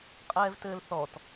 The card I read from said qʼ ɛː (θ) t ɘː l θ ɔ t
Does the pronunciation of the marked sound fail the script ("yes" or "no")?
yes